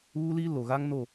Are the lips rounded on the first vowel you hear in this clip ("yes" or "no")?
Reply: yes